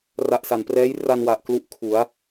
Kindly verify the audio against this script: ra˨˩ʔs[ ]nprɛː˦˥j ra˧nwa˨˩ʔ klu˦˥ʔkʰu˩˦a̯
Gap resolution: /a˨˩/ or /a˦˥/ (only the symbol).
a˨˩